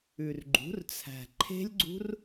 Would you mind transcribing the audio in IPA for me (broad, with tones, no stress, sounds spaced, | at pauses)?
ʉ˨ r ɡ͡ǃ ṳ˩˥ r t͡sʰ æ̤˨ ǃʰ e̤˦˥ lʲ ɡ͡ǀ ṳ˦˥ r